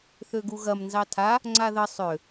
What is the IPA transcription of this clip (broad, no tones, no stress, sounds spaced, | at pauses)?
θ ø ɡ u ɣ ɐ m n z ɑ tʰ a | ŋ͡ǀ a ð ə sˤ ø